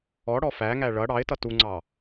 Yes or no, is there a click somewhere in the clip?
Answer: yes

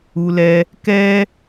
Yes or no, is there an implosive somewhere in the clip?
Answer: no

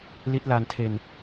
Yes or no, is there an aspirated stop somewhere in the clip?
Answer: yes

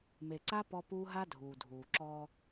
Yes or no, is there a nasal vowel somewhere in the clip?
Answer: no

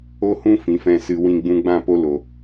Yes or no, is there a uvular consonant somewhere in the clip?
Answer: no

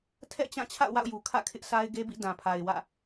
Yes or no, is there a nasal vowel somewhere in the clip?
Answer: yes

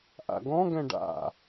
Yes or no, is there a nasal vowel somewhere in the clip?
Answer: yes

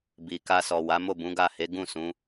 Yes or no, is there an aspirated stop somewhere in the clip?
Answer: no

